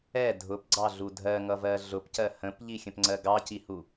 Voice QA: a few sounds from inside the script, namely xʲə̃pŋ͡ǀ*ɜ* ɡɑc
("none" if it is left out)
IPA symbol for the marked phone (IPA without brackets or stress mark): ɜ